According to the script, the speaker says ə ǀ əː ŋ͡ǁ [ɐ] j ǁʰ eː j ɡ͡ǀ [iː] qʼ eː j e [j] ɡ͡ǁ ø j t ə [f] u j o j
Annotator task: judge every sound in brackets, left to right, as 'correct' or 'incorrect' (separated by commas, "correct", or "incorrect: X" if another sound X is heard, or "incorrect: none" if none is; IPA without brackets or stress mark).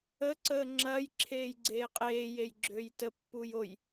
correct, incorrect: eː, correct, incorrect: pː